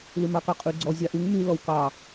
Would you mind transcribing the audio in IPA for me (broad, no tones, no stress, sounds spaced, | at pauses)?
l ʉ m ɑ k ɑ qʼ ʉ ɡ͡ǀ ɔ zʲ ɑ ʔ ʉ ŋ m y l ɔ w k ɑ